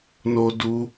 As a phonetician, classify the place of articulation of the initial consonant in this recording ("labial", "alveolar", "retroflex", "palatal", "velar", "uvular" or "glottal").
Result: alveolar